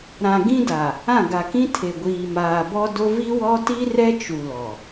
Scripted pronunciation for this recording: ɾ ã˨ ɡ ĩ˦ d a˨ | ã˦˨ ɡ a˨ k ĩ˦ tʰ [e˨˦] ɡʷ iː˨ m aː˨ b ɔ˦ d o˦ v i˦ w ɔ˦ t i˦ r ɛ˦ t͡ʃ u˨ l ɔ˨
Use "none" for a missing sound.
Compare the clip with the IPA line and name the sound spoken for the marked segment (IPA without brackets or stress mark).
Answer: e˨